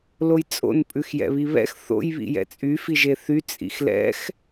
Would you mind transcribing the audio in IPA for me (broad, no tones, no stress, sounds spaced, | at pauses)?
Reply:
l o j t͡sʼ o̰ n pʼ ʉ x j ɛ̰ β i β ɛ̰ x θ o̰ j β ḭ j ɛ̰ t͡sʼ y f i ʒ e θ y t͡sʼ ḭ x l ɛ̰ x